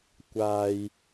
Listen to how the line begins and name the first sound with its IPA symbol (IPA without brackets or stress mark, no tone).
kʷ